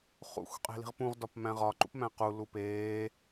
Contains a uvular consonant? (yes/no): yes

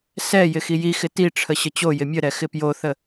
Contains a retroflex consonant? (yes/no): yes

